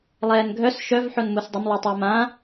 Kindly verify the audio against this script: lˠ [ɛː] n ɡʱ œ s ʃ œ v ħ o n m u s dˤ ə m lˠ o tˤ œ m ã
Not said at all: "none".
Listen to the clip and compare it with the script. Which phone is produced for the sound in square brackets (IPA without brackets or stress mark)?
ɛː